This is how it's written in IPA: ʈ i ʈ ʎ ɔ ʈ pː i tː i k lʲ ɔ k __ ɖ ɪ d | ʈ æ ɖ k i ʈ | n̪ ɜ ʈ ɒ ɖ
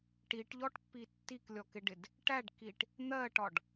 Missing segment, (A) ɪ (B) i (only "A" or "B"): A